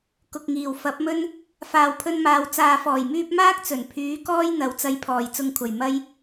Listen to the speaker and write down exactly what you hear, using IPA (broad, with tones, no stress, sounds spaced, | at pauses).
k ʊ˨ k̚ ŋ iː˨˩ w f ɐ˨˥ p̚ m ɵ˥ n | f aː˨ w pʰ ɵ˧ n m aː˨ w t͡s aː˨ f ɔː˨˩ j m yː˧ p̚ m aː˥ k̚ t͡s ɵ˨˩ n pʰ yː˨˥ k ɔː˥ j n̪ ɐ˨˥ w t͡s ɐ˧ j pʰ ɔː˨˩ j t͡s ʊ˨ ŋ kʷʰ ɐ˨˩ j m ɐ˥ j